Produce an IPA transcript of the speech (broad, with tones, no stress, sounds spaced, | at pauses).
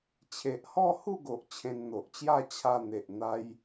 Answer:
t͡ɕʰ e˨ ʔ h ɔ˥˧ h u˥˧ ɡ o˨ ʔ t͡ɕʰ ẽ˧ n n̪ o˨ ʔ t͡ɕ j a˥˧ t͡ɕʰ a˧ n̪ e˨ ʔ n̪ a˦ j